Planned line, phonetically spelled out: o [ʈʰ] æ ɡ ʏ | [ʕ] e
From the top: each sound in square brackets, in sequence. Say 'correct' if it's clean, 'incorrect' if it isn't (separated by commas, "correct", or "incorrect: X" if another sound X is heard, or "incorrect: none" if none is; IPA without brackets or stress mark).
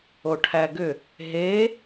correct, incorrect: ɦ